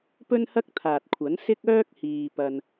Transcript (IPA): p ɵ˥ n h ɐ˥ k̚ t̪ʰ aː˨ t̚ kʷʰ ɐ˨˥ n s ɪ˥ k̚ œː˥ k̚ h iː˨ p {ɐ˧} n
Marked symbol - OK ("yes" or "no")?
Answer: yes